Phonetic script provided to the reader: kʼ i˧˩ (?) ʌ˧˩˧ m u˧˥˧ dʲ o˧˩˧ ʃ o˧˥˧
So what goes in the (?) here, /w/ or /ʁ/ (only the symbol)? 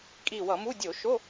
w